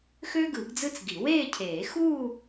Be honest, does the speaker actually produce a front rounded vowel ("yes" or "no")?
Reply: yes